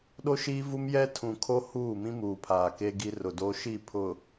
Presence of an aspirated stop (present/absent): present